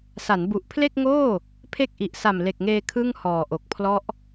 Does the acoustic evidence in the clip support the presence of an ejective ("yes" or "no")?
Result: no